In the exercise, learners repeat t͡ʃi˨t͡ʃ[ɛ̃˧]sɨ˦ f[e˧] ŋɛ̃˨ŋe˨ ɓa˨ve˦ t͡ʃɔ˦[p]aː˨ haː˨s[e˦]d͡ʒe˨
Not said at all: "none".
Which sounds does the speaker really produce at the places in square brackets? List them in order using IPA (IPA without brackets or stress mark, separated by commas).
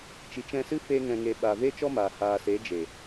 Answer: ɛ̃˧, e˧, m, e˨˦